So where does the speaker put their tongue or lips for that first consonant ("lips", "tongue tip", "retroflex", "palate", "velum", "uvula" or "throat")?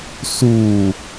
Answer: tongue tip